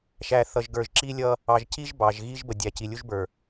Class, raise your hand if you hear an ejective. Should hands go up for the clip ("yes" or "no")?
no